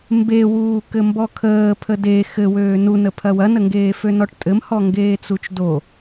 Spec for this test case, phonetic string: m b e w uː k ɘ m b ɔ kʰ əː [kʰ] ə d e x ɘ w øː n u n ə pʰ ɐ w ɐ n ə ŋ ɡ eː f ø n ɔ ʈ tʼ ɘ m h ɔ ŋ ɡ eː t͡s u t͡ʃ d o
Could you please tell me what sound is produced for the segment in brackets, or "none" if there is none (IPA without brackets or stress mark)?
pʰ